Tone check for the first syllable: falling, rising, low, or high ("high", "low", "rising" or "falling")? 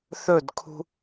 falling